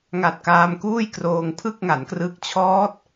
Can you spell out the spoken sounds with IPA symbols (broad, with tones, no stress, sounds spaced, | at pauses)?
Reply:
ŋ a˨˩ t̚ k aː˧ m k uː˥˩ j k r oː˧ ŋ pʰ ɯ˥˩ k̚ ŋ a˩˦ n k r ɯ˦˥ k̚ t͡ɕʰ ɔː˦˥ t̚